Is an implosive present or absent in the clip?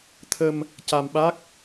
present